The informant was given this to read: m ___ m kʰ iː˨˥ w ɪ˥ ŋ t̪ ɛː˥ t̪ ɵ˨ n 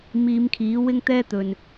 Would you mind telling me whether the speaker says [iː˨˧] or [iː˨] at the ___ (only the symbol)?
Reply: iː˨˧